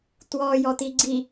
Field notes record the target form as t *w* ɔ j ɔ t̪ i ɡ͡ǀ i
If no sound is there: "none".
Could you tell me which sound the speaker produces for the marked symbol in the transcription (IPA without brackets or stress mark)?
w